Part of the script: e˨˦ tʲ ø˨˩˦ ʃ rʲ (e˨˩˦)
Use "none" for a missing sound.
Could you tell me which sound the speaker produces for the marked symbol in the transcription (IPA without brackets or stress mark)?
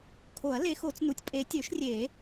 e˨˩˦